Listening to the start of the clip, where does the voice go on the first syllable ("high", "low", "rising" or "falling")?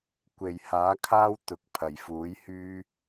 low